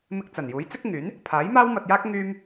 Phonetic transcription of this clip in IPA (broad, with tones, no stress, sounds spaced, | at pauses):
m ɪ˧ k̚ t͡s ɐ˨˩ n j uː˨˥ j t͡s ɪ˥ k̚ ŋ yː˨˥ n | pʰ aː˨˥ j m aː˥ w m ɐ˧ t̚ j aː˥ k̚ ŋ yː˥ m